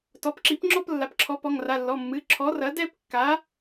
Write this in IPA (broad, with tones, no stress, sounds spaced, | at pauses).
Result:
t ɔ˩˧˩ p ǁ i˩˥ p ŋ͡ǁ ɔ˥˧ p lː a˩˧˩ p ǁʰ ɔ˩˥ p ɔ˩˧˩ ŋ r a˩˧˩ lː ɔ˩˧˩ mː ɨ˩˧˩ ǁʰ ɔ˩˥ r ɐ˩˥ d ɛ˥˧ p kː a˩˥